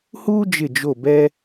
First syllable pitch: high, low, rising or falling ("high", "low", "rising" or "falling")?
high